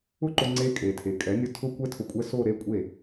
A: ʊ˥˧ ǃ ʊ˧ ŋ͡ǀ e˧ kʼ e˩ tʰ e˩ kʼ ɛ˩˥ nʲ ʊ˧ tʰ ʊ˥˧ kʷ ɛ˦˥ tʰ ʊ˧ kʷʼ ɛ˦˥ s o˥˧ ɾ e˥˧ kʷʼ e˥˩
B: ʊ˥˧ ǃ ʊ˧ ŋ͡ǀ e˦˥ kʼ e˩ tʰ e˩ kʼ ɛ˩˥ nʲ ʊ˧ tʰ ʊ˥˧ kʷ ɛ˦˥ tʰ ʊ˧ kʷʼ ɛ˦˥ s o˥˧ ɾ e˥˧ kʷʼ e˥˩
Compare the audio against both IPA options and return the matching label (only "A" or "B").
B